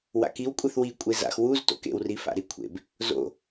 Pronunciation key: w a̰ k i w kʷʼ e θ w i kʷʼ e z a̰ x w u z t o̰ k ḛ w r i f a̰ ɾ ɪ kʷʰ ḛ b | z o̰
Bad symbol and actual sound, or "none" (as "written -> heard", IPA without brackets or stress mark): ɪ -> i